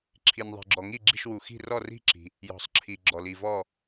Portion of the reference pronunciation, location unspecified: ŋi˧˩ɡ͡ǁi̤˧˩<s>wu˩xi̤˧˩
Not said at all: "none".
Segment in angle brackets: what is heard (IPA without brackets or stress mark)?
ʃ